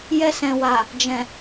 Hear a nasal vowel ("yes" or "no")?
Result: yes